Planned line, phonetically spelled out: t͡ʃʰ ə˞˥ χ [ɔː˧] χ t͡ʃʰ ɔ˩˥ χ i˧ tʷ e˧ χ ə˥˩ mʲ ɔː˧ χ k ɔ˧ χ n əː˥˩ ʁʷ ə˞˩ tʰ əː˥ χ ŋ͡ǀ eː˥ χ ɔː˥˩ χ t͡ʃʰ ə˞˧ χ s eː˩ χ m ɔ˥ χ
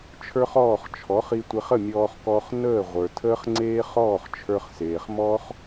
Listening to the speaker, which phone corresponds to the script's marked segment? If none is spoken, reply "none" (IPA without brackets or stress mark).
ɔː˥˩